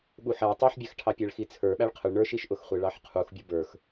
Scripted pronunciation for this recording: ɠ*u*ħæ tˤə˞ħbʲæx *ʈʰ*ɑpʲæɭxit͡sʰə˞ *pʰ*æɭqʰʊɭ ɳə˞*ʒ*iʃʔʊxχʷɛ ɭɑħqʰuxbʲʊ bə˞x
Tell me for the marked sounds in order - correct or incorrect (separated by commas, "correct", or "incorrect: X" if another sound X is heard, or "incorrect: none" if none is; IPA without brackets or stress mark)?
correct, correct, incorrect: ɓ, incorrect: ʃ